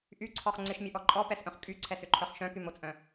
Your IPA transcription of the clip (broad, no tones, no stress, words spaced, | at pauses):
ʔyǀʰɔχ ŋ͡ǀɪʃmʲəʔɔ ǃʼɔpɛsʔœ̃χ kʼyǀʰɛsʏǃʰœχ ʃœ̃kymot͡sʼœ̃